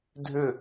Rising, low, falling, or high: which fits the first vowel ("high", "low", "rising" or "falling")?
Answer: falling